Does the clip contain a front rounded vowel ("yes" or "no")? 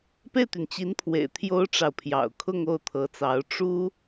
yes